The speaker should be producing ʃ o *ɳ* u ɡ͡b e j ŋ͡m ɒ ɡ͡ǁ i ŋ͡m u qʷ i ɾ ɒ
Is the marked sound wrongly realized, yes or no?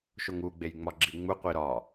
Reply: yes